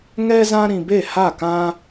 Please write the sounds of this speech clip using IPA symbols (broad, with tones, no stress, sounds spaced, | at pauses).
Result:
ŋ ɛ˦ z ã˦ ɾ ĩ˧ b e˦˨ h a˦˨ k ã˦